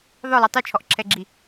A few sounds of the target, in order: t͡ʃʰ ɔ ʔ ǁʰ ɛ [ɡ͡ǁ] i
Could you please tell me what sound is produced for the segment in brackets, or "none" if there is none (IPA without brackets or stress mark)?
ɡ͡ǁ